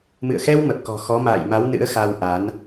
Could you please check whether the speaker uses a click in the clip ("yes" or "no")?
no